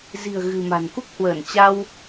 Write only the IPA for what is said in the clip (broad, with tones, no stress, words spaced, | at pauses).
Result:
zi̤˨˩ə̯ ɣɨ̤˨˩ma̤˨˩n ku˦˥k̚hwəː˧˩nt͡ɕa˧w